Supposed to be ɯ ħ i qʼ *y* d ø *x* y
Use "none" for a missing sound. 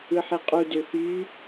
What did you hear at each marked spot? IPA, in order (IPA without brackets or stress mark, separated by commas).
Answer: u, x